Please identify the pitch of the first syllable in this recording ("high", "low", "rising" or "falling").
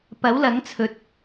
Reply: rising